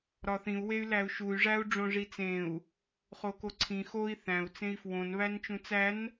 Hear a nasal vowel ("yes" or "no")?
yes